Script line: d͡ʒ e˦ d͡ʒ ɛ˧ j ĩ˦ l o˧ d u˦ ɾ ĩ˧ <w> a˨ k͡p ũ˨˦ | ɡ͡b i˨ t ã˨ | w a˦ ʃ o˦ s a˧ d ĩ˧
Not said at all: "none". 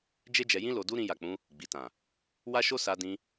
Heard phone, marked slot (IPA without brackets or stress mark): j